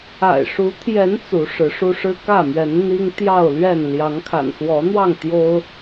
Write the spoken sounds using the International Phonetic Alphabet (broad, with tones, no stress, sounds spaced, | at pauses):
a̰˨˩ ɪ̯ ʂ u˨˦ t̪ʰ j ɛ˨˦ n t͡s u˨˦ ʂ ɻ̩˨˦ ʂ u˦ ʂ ɻ̩˦ k ä˥˨ m ɥ ɛ˨˦ n n̪ i˦ ŋ t̪ j ɑ˥˨ ʊ̯ l ɥ ɛ˥˨ n l j ɑ˨˦ ŋ kʰ a̰˨˩ n s w ɔ˨˦ n̪ w ɑ˥˨ ŋ t̪ j o˦ ʊ̯